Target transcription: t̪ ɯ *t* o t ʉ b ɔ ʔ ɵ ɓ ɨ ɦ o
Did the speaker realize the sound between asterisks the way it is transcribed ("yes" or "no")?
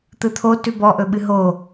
no